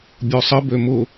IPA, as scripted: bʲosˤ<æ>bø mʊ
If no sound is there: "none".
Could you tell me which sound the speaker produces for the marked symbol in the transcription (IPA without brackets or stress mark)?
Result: ə